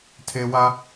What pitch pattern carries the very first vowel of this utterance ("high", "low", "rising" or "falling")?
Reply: high